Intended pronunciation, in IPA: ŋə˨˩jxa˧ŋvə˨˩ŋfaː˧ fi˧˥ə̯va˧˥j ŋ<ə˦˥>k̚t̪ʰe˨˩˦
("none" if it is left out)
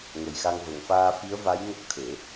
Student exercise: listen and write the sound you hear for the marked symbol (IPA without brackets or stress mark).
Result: ə˦˥